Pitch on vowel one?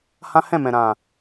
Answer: high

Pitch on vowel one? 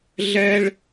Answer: high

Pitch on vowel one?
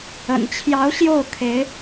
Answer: low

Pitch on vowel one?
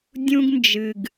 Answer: high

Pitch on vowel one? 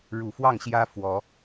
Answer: low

